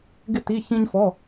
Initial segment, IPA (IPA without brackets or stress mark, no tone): ɡ